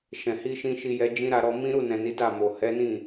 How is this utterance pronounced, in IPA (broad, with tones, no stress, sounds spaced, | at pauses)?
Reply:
ʃ ɛ̃˨ h i˧ ʃ ĩ˧ ʃ i˧ j ɛ˧ d͡ʒ ĩ˦ ɾ a˧ ɾ ɔ˧ m ĩ˦ ɾ u˦˨ n ɛ̃˨ n i˨˦ d a˦˨ m o˨ h ɛ˨˦ n ĩ˦˨